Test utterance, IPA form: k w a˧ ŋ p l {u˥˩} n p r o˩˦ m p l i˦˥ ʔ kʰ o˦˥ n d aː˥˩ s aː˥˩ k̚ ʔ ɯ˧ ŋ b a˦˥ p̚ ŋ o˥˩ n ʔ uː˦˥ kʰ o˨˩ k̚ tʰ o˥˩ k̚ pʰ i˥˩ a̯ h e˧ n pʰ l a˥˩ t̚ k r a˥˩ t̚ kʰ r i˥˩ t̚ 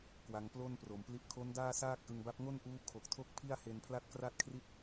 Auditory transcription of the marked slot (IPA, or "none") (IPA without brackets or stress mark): o˥˩